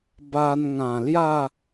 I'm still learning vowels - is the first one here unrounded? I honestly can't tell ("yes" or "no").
yes